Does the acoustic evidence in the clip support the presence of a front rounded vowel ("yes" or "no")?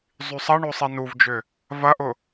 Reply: yes